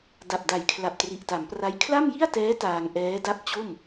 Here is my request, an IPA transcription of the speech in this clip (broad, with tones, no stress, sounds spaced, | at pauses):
d a˨˩ p̚ d a˨˩ j kʰ l a˨˩ p̚ t r i˨˩ ʔ t a˩˦ m p r a˦˥ j kʰ l a˥˩ m j i˥˩ a̯ t ɛː˦˥ t aː˧ ŋ ʔ ɛː˦˥ d a˥˩ p̚ t͡ɕ o˥˩ m